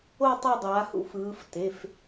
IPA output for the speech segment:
o˦˨ tˤu˦˨dˤaː˩˧hṵ˦˨f ɯː˩˧fte˩˧˩f

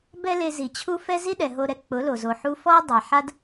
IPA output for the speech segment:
bɛ˦ le˧zi˨t͡ɕʰu˦ fɛ˦zi˦ɗɛ˨ ɦo˧ɾɛ˧ k͡pʊ˨˦lo˨zo˨ħu˦ fɔ˦ɐ̯ dˤa˨ħa˦d

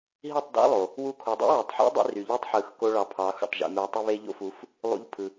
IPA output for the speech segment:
ɦi˦˨tˤdɑ̰˦ lˠo˨ | wu˧kʰo˨dˤṵ˦ wø˨tˤħṵ˦ dˤḭ˦ry˨ʎi˦tˤħɯ˨˦x ko˦ɭɑ˧pʰɑ˨˦xṵ˨tˤ ʒḭ˨mø˧tˤy˦ βe˦ʎo̰˦fu˨˦f | lˠṵ˧ʎpʰɯ˨

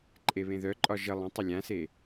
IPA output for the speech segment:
ǃʼeβẽðœǃʼɒ ʒə lˠə̃ tˤəlʲãse

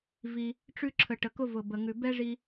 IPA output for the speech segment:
vi˩ | ʈ͡ʂʉ˧ǁʰə˩ʈə˩ kʊ˧vʊ˩bə˩ ŋʉ˩ bɛ˥ʐi˧

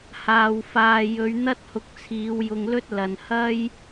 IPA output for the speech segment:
haː˨w faː˨jɵ˨˧ɥn̪ɐ˥t̚hʊ˨˥k̚ t͡sʰiː˨˧wjʊ˧ŋlɵ˥t̚ lɐ˨nhɐ˥j

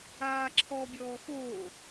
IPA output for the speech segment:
aːǁʰɔːbʲɔːxoː

